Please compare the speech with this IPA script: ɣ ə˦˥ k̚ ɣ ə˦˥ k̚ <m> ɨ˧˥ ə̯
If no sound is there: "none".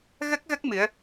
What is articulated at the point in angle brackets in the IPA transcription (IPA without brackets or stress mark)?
m